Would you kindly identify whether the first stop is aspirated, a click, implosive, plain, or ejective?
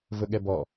implosive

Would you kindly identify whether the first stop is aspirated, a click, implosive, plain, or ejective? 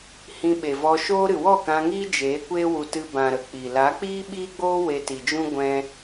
implosive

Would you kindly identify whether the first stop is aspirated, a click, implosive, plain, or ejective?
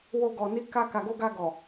plain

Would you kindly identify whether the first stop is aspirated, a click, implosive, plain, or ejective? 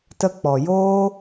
plain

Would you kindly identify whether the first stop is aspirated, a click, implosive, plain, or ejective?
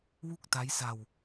plain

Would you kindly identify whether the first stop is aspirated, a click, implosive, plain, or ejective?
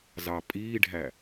ejective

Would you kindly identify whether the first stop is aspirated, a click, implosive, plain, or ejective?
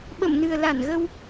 implosive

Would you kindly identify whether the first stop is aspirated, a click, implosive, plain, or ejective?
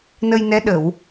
implosive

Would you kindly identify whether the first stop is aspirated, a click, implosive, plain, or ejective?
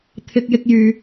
aspirated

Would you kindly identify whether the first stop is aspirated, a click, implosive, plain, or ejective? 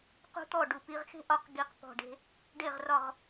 plain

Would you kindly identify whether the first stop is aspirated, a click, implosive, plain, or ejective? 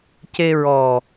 plain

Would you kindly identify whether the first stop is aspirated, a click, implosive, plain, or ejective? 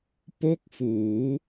plain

